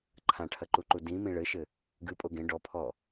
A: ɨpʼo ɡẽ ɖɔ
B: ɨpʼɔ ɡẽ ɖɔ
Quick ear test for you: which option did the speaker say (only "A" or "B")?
A